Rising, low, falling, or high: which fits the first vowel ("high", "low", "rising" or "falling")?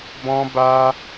high